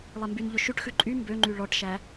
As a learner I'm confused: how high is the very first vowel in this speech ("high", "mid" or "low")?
mid